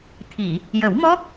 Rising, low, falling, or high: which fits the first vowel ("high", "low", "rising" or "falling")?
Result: low